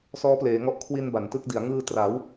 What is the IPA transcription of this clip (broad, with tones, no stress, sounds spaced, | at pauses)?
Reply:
s ɔː˦˥ p l eː˩˦ ŋ ɔ˦˥ ʔ kʰ w i˧ n b a˩˦ n t ɯ˥˩ k̚ d i˩˦ a̯ ŋ ɯː˧ t r a˩˦ w